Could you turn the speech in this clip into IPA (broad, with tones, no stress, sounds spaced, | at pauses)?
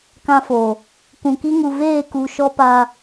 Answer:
k ã˧ f o˨ | k ũ˨ k i˦ ŋ u˨ v eː˦˨ k u˧ ʃ ɔ˦ p a˦